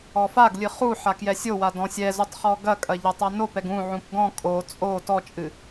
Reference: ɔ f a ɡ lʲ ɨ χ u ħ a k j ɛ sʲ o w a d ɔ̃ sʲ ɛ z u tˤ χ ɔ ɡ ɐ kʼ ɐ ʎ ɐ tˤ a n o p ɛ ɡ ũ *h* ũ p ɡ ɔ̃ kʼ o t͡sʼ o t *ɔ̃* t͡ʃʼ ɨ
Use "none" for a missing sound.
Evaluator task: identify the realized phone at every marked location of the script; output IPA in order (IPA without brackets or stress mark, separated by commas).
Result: ʕ, ɔ